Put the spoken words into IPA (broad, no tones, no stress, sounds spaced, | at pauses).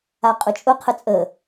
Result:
a qʼ ʊ t͡ʃʼ ʊ qʰ ə t͡sʼ ə